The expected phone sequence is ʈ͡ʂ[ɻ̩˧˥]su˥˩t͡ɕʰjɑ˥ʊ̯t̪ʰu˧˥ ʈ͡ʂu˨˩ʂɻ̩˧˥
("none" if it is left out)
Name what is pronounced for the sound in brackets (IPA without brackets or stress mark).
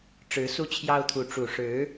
ɻ̩˧˥